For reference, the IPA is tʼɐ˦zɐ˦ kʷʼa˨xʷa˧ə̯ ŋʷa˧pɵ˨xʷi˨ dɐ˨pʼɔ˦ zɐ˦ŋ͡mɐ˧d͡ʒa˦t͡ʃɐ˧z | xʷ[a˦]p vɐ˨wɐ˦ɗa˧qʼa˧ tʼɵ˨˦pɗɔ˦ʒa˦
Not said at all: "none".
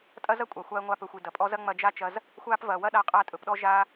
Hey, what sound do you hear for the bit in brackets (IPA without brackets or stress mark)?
a˦